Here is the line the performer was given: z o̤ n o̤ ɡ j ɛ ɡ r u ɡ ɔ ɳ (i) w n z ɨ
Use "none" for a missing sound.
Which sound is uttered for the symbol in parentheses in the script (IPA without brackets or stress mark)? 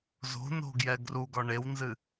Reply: e